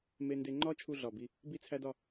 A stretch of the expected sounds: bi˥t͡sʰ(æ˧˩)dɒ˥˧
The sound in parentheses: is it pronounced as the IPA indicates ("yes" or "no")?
no